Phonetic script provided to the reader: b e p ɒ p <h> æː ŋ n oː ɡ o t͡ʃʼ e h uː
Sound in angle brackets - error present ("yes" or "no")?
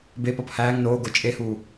no